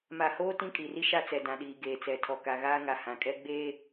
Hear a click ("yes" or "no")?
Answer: no